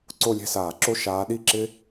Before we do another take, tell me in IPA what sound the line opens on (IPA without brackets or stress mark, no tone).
ǀ